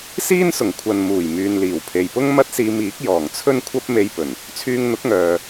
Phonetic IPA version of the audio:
s iː˥ n s ʊ˨˩ ŋ kʷʰ ɐ˨ n m uː˨˩ j m yː˨ n l iː˨˩ w pʰ e˨ j p ʊ˥ ŋ m ɐ˥ t̚ s iː˧ m iː˨˥ k̚ j ɔː˨˩ ŋ t͡sʰ ɵ˥ n kʷʰ ɐ˥ p̚ m e˧ j p ɵ˨˩ n | t͡sʰ yː˧ ŋ n̪ ʊ˨˥ k̚ ŋ œː˨

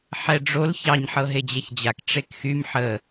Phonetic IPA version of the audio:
ħ ɛ ɖ͡ʐ o l ç ɑ ɲ ħ ɤ ɦ e d͡ʑ ɛ ç d͡ʑ a k ʈ͡ʂ e k x y m ħ ə

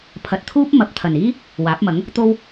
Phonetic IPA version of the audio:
pʰ ɐ˨ t̚ t̪ʰ uː˥ p̚ m ɐ˨˥ p̚ t̪ʰ ɐ˨˩ n iː˥ | w aː˨˥ p̚ m ɐ˨˥ ŋ | t̪ o˧ w

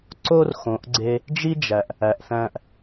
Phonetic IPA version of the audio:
ǀ o˥ r x õ˩˧ ʔ ɡ͡ǀ e˧ | d͡ʒ i˥ d͡ʒ æ˩ ʔ | æ˩ ʔ θ æ̃˧ ʔ

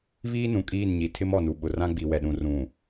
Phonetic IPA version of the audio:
β iː˦ n ũ˨ kʼ iː˦˨ n ɲ i˨ tʰ ɪ˦ m ɔ˨ n u˨ ɓ ʊ˨ r ã˦ ɡ͡b i˨ w ɛ˨ ɗ ũ˨ r ũ˨

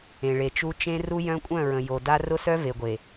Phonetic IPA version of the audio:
ẽ˨ ɭ e˨ t͡ʃ u˦ t͡ʃ ẽ˦ r u˦ j œ̃˦ kʷʼ œ̃˦˨ ɹ ə̃˨ j o˨ d a˦ r ʊ˦ s œ˦ v e˨ ɡʷ e˨

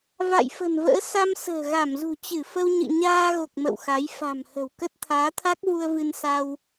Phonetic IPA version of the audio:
v a̰˧˨ j f ə̤˨˩ n v ə̰ː˧˥ s a˧ m s ə̤ː˨˩ ɣ a˧˩ m z ṳ˨˩ t͡ɕ ɨ˧˩ f ə˧ w ɲ ɨ̰˧˨ ɲ aː˧ ɣ o˨˩ k̚ m ə̰˧˨ w x a˨˦ j f a̤˨˩ m h ə̤˨˩ w k ə˦˥ t̚ t̪ʰ aː˨˦ t̪ʰ a˦˥ k̚ v u˧ ə̯ v ɨ˧ n s a˧ w

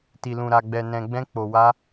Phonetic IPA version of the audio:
t i˨ l ũ˨ ɾ a˨ ɡ͡b ɛ˨ n ɛ̃˨ ɡ͡b ɛ̃˧ k͡p o˨ w a˧

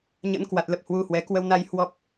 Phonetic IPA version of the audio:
ɲ ə̰˧˥ n k w a˨˩ t̚ l ə˨˩ p̚ h w u˧ h w ɛ˨˦ k w ə˧ w n a˧ j h w ɔ˦˥ p̚

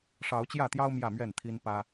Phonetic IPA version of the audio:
ʂ ɑ˨˦ ʊ̯ t͡ɕ j ä˥˨ t̪ j ɑ˦ ʊ̯ m j ä˥˨ m ɥ ɛ˥˨ n t̪ʰ i˦ n p ä˦

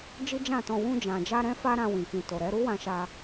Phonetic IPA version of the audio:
d͡ʒ i˦ d͡ʒ ã˦˨ t ɔ̃˧ w ũ˧ d͡ʒ ã˨ d͡ʒ a˧ ɾ ɛ̃˦ f a˦ ɾ ã˧ w ĩ˨ k ĩ˨ t o˨ ɾ ɛ˨˦ ɾ u˦ w ã˧ ʃ a˧

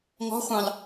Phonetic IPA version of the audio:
ŋ ɔ̤ χʷ ɑ̃ l

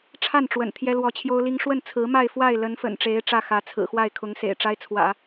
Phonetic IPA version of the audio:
ʈ͡ʂʰ a˥˩ n ʈ͡ʂ w ə̰˨˩ n t̪ʰ j ɛ˥ l w ɔ˧˥ t͡ɕʰ j o˥ ʊ̯ l i˥ ŋ ʂ w ə˥˩ n t͡sʰ ɹ̩˧˥ m a˥˧ ɪ̯ f w a˥˩ ɪ̯ l ə˧˥ n f ə̰˨˩ n ʈ͡ʂ e˧˥ ɪ̯ ʈ͡ʂ ä˥˩ x ä˧˥ t͡sʰ ɹ̩˨˩ x w a˥˩ ɪ̯ kʰ ʊ˧˥ ŋ s ḛ˨˩ ɪ̯ ʈ͡ʂ a˥ ɪ̯ t͡sʰ w ä̰˨˩˦

